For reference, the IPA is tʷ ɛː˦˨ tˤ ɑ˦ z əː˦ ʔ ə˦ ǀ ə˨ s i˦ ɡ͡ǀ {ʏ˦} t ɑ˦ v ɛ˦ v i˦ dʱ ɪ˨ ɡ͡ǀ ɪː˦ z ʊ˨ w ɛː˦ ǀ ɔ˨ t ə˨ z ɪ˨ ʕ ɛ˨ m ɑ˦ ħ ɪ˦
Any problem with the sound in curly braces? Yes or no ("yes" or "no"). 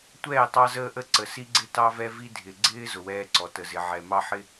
yes